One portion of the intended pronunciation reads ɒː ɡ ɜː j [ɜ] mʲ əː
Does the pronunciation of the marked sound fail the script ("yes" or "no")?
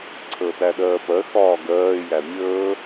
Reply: yes